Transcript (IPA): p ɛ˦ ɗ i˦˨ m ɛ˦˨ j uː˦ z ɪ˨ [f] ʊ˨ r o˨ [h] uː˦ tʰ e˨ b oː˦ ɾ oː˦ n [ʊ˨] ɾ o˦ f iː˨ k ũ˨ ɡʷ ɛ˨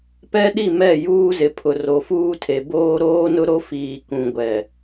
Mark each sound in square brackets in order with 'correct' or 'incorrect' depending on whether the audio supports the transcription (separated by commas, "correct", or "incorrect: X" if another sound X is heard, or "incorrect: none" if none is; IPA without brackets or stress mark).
incorrect: pʰ, incorrect: f, incorrect: ʊ˦